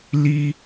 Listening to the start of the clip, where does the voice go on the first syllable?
high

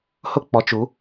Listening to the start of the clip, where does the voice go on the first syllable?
falling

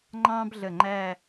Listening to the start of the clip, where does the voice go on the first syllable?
high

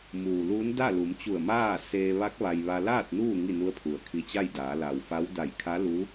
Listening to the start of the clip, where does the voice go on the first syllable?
low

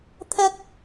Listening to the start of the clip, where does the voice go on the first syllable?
high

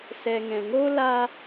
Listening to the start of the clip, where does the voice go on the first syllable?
low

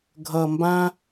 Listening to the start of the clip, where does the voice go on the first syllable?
low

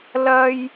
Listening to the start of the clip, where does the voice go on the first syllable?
high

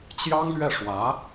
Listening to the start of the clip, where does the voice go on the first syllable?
high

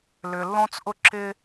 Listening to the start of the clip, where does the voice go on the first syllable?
low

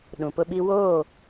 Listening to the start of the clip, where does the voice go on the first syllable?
low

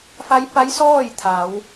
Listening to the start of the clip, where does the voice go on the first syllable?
rising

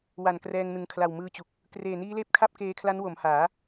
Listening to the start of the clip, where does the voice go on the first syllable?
low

